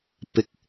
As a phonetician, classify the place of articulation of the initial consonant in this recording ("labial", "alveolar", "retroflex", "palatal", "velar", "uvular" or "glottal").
labial